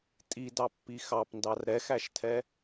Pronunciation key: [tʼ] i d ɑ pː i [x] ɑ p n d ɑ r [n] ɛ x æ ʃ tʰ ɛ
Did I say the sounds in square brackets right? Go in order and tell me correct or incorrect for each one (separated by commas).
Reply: correct, correct, incorrect